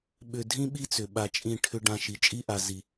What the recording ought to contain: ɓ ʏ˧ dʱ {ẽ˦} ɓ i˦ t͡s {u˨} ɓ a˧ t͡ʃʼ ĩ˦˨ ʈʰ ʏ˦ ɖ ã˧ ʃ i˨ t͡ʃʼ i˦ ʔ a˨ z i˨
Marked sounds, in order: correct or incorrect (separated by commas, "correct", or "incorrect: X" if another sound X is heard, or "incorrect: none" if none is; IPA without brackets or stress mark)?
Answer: incorrect: ĩ˦, incorrect: ʏ˨